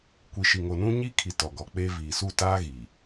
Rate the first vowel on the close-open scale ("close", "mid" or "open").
close